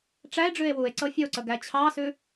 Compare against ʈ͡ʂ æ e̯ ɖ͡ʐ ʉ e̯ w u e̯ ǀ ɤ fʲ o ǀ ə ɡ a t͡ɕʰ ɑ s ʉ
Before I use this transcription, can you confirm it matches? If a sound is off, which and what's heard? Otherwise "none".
a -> æ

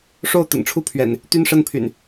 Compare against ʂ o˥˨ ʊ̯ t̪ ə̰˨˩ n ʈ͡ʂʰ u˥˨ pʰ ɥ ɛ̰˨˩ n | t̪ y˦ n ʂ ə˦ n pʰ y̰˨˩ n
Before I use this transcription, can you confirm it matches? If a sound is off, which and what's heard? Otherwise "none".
none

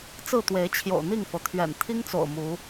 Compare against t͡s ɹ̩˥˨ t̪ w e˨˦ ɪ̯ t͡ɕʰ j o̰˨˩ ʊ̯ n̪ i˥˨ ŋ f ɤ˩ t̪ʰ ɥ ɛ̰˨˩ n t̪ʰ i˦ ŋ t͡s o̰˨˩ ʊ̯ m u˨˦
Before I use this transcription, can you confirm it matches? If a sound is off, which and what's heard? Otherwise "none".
none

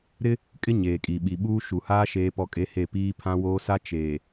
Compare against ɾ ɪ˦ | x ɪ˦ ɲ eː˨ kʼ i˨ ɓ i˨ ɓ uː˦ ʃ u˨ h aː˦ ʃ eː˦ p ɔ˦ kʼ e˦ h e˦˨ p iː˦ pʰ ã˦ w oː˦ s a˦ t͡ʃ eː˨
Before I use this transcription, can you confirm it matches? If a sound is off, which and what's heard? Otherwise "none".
x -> kʼ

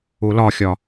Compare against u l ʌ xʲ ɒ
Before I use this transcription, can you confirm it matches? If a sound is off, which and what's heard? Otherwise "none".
ʌ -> ɒ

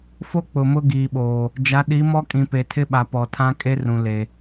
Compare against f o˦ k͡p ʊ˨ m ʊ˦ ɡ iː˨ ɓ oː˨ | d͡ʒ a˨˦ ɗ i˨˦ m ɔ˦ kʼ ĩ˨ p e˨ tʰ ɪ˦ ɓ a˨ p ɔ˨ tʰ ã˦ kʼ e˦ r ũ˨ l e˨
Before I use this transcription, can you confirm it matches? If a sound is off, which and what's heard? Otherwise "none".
none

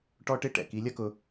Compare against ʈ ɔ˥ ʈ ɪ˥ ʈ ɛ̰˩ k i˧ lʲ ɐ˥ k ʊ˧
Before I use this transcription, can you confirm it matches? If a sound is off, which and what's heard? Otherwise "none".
none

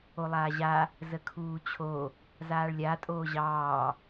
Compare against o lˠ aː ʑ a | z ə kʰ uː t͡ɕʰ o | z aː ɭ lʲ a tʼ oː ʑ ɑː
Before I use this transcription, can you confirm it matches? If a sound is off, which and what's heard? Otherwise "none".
none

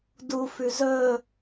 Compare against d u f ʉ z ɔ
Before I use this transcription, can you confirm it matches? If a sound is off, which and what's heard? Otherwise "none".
ɔ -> ɵ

